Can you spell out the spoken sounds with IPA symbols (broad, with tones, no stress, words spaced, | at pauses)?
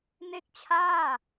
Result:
ne˥˩k̚t͡ɕʰaː˥˩